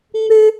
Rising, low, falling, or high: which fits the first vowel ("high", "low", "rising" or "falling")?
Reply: high